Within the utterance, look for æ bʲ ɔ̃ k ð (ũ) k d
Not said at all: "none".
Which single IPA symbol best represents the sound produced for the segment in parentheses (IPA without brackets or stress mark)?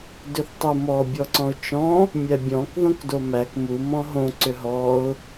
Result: õ